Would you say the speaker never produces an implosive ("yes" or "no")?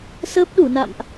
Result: no